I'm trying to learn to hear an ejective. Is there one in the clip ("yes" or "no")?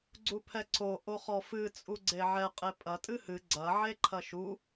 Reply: yes